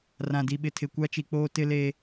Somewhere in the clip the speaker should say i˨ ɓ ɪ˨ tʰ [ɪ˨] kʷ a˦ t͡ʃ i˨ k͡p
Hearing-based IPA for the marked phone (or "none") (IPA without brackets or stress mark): ɪ˨